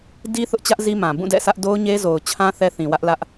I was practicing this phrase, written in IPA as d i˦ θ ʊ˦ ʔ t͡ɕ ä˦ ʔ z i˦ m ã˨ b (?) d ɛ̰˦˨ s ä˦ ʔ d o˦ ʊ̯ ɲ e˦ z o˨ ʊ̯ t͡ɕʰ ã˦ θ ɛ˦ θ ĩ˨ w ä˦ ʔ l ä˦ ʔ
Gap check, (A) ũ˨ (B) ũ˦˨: B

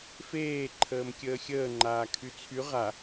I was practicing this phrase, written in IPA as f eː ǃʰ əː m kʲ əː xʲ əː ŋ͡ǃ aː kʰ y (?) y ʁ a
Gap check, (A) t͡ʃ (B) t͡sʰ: B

